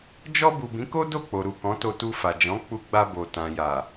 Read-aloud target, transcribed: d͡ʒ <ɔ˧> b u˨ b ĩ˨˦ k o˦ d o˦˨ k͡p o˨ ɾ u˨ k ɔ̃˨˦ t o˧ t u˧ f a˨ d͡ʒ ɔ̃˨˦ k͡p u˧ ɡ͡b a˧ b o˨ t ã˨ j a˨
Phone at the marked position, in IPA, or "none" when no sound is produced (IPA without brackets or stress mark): ɔ˧